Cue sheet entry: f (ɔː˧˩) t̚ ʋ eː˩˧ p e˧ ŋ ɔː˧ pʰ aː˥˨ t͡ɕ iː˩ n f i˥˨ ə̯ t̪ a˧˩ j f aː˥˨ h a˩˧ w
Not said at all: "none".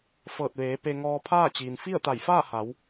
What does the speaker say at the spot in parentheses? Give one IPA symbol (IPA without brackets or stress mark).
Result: ɤː˧˩